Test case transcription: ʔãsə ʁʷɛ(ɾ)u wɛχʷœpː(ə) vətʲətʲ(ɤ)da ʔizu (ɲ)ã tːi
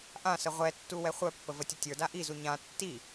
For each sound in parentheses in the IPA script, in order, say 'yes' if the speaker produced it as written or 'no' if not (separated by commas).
no, yes, no, yes